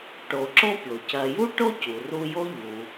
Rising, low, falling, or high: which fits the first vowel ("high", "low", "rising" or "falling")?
low